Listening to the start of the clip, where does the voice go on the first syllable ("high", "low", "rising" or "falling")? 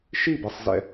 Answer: falling